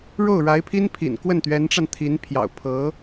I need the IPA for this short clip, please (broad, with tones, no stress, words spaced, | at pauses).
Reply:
ɻo˥˩ʊ̯ɻa˧˥ɪ̯pʰi˥n pʰḭ˨˩nkwə˥˩n t̪ɥɛ˧˥nʈ͡ʂa˧nt̪ʰi˧˥n pʰjɑ̰˨˩ʊ̯pʰɤ˧˥